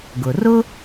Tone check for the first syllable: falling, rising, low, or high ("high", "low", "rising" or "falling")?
low